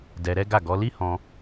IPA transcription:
d ɛ˧ ɾ ɛ˦ ɡ a˦˨ ɡ ɔ˨˦ l i˦ h ɔ̃˧

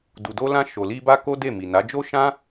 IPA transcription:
d u˨ d o˧ l ã˧ ʃ o˨ l i˧ b a˦ k o˦ d e˦˨ m i˨ n a˨˦ d͡ʒ o˦ ʃ ã˦

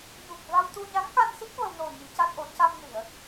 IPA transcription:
ɲ u˨˩ k̚ v a˧ w t̪ u˧ ɲ a˧˥ ŋ k a˧ n s i˦˥ k̚ v ə˧ w n o˨˩ ɲ i˨˩˦ c a˦˥ t̚ ʔ o˨˩˦ c a˧ m n i˨˩˨ ə̯

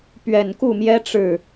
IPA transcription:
p ɥ ɛ˨˩ n k u˥˩ m j ɛ˥ ʈ͡ʂ ɻ̩˥˩

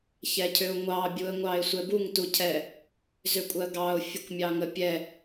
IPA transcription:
ç ɛ cʰ ʏ ʊ̯ ŋʷ ɑ bʲ u ə̯ ŋʷ ɑ ɪ̯ sʷ ɛ b u ŋ t u cʰ ɛ | z ʏ kʷʼ ɜ ɡ ɑ ʊ̯ fʲ ə kʷ mʲ ɑ ŋ ə pʲ ɛ

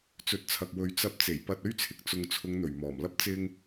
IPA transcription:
t͡s ɵ˨˥ t̚ t͡sʰ ɐ˨ k̚ w ɵ˨˧ ɥ t͡s ɐ˧ p̚ t͡s e˨˩ j p ɐ˧ t̚ ɵ˥ ɥ t͡sʰ ɪ˨ k̚ t͡s ʊ˨ ŋ t͡sʰ ʊ˨˧ ŋ n̪ ɵ˨˩ ɥ m ɔː˨˩ m l ɐ˥ p̚ t͡s ɪ˥ ŋ

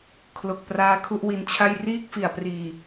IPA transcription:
kʰ l o˨˩ k̚ p r aː˧ kʰ u˥˩ ʔ w i˧ n t͡ɕʰ a˥˩ j r iː˥˩ k̚ f i˨˩ a̯ p r iː˨˩

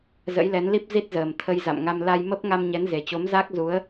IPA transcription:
z ə̰˧˥ j l ɛ˨˦ n l i˦˥ p̚ z i˦˥ t̚ z əː˨˩ m t̪ʰ ə˧ j z a̰˧˨ m ŋ a˧ m l a˧ j m ə˦˥ p̚ ŋ a˧ m ɲ ɛ˨˦ n z e˨˩ t͡ɕ o˨˦ m z a˦˥ k̚ z u˨˦ ə̯

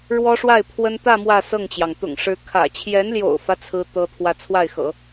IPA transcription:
ɻ w ɔ˥ ʂ w a˥˩ ɪ̯ pʰ w ə˥ n t̪ ä˥˧ m w ä˥˧ s ɤ˥˩ ŋ t͡ɕ j ɑ˩ ŋ t̪ ʊ̰˨˩ ŋ ʂ ɻ̩˧˥ kʰ ä̰˨˩ t͡ɕʰ j ɛ˧˥ n l j o̰˨˩ ʊ̯ f ä˦ t͡sʰ ɹ̩˥ t̪ ɤ˥ t̪ʰ w ä˥˧ t͡sʰ w a˥˩ ɪ̯ x ɤ̰˨˩˦

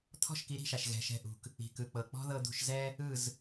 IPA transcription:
t̪ʰ ɔ̤˥˩ ʃ k i˩˥ ɾ i̤˥˩ ʃ a˩ ʃ ɣ ɛ̤˩˥ ʃ ɛ̤˧ ʔ ṳ˩ k | i̤˩ k ɯ˩ k͡p ɤ˩ k͡p ɔ̤˥ ð ɤ˧ d̪ ṳ˧ ʃ z ɛ˥ | ɯ˥˩ z

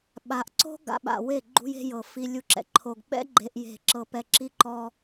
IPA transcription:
ɓ a˨ ʔ ǀ o̤˦ ɡ a̰˨ ɓ a̰˨ w e˦˨ ɡ͡ǃ ṳ˦ j e̤˦ j ɤ˨ f i˦ lʲ u˦ ǁ ɛ̰˨ ǃʰ o˨ ɡ ɓ ɛ̰˦ ɡ͡ǃ e˦ ʔ j e̤˦˨ ǁ ɤ˦ p ɛ˦˨ ǁ i˦ ǃ ɔ˦

